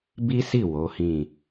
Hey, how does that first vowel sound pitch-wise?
high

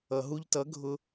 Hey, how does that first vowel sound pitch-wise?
low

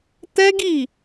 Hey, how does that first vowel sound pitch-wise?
high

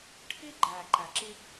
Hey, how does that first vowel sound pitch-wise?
high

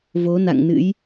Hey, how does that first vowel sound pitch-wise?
rising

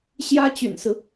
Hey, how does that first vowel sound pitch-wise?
high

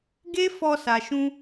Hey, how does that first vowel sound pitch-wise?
high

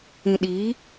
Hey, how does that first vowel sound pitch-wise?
low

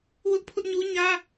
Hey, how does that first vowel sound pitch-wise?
high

